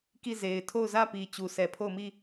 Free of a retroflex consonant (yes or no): yes